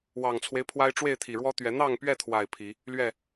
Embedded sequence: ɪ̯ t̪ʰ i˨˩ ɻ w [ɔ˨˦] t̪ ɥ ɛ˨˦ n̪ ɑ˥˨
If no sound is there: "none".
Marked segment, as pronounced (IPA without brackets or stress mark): ɔ˦